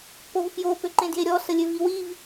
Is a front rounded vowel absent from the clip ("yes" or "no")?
no